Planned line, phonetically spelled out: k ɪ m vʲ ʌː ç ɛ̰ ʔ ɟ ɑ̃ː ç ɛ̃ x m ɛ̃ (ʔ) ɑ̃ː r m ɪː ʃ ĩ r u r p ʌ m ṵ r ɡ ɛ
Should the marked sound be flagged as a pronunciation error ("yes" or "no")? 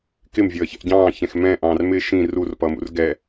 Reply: no